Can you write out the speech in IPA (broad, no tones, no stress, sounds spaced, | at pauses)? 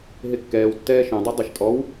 ɦ e kː ɛː w tː ɛː ʃ œ̃ dˤ u dˤ ɛ ʃ tʼ ɔ w